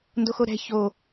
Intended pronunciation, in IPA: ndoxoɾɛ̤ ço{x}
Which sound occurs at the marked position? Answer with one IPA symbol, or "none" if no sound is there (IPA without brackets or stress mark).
none